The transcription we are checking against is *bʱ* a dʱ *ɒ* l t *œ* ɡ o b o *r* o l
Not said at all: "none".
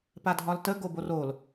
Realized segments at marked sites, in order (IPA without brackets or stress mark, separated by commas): p, ɒ, ə, r